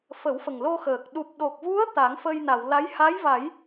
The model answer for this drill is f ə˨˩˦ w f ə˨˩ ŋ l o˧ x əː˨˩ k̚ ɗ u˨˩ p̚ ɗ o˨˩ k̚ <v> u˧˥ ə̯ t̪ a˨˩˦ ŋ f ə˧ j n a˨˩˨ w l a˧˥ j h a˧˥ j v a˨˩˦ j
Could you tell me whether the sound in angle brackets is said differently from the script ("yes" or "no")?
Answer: no